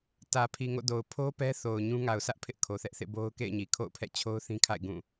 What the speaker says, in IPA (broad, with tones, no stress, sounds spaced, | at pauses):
t ä˨ pʰ i˨ ŋ o̰˦˨ d o˨ ʊ̯ pʰ o˦ p ɛ˦ θ o˨ ʊ̯ ɲ ũ˦ ŋ a˨ ʊ̯ s ä˦ ʔ pʰ ɪ˦ ʔ kʰ o˨ θ ɛ˦ ʔ θ ḛ˦˨ b o˦ ʊ̯ k ḛ˦˨ ɪ̯ ɲ i˨ kʰ o̰˦˨ ʊ̯ pʰ ɛ̰˦˨ t͡ɕʰ o˦ ʊ̯ θ ĩ˦ kʰ a̰˦˨ ɪ̯ ɡ ũ˦˨